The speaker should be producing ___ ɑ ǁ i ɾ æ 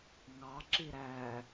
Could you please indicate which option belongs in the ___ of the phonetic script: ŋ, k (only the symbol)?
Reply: ŋ